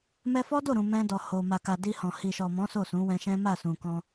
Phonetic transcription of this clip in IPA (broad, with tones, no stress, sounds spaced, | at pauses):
m ɛ˧ f ɔ˦ d o˦˨ ɾ ũ˨ m ɛ̃˧ d ɔ˨ h o˨ m a˨ k a˨ d i˧ h ɔ̃˨ h i˨ ʃ ɔ˨ m ɔ̃˨˦ s o˦˨ s ũ˨˦ w ɛ̃˧ ʃ ɛ̃˦ m a˦˨ s ũ˨ k ɔ̃˧